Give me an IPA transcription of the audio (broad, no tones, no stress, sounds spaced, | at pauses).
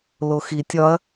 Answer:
l o x i tʲ ɒ ɐ̯